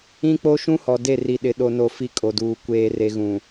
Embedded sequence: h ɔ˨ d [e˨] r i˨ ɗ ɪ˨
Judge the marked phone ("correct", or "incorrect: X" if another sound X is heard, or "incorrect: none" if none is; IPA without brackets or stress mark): incorrect: e˦˨